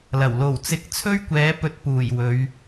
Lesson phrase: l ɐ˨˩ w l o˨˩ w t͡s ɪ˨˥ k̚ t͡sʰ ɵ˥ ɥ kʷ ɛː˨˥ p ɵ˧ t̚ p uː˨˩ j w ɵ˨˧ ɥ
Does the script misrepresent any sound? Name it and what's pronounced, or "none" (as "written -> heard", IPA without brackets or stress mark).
none